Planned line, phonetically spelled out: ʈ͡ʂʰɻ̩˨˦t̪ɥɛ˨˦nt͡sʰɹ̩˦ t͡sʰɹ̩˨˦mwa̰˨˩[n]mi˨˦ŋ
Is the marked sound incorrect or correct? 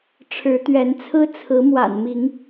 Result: correct